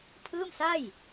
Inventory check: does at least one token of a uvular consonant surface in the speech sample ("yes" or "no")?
no